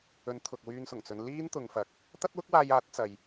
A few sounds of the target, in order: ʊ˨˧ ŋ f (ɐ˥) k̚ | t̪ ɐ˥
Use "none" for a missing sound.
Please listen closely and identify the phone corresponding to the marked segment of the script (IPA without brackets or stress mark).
ɐ˨˥